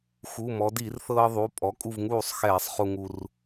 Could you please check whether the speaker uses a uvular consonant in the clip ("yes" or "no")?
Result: yes